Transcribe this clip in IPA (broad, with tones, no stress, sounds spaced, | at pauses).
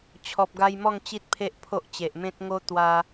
t͡ɕʰ ɔ˨ p̚ ɡ a˧ j m ɔ˥˧ ŋ t͡ɕ i˦ t̚ pʰ e˦ ʔ pʰ o˦ ʔ t͡ɕ e˨ ʔ m ẽ˦ t̚ ŋ o˦ t̪ w a˦